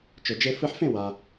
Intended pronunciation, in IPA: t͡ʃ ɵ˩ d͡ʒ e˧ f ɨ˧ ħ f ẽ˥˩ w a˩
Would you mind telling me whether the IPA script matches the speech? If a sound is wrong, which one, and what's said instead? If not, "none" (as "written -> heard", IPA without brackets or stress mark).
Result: none